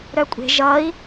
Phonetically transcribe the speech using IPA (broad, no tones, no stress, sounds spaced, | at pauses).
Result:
ɾ œ kʷʼ e̤ ʒ ʌ i̯